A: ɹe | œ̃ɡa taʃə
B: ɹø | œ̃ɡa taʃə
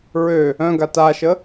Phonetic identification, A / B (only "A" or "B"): B